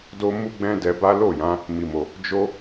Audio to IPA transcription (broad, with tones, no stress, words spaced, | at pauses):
do˦mu˦ɡ͡bɛ̃˦ dɛ˧ba˦ lo˦˨jã˨˦ | mi˨mo˨ | d͡ʒo˦